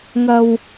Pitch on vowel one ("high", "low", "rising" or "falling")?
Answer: low